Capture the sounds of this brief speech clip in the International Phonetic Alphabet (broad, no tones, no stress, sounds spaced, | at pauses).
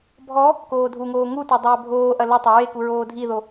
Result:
bʱ ɔ | k oː dʱ u ŋ oː ŋ u t o dˤ ɐː bʱ oː ʔ ɐ l ɐ tˤ ɐ ɹ e k u ɹ oː dʱ i ð o